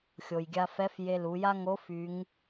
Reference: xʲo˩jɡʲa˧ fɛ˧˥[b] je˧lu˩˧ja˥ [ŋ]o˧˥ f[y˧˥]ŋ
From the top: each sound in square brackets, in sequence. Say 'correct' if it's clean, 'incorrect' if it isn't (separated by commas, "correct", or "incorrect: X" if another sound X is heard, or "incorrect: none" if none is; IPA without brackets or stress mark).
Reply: incorrect: f, correct, correct